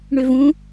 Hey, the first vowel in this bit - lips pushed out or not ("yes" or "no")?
yes